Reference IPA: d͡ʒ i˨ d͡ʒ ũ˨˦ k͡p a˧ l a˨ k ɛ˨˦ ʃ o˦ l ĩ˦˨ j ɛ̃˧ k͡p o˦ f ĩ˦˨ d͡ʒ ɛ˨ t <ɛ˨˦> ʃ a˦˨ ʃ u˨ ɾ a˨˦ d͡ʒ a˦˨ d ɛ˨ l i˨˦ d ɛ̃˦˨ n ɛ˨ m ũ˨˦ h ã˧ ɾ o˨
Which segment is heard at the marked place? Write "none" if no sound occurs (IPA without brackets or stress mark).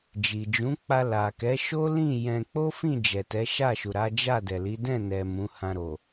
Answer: ɛ˨˦